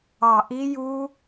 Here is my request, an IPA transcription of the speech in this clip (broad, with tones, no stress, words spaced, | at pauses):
ɑ˨˩ʔi˦˥ju˦˥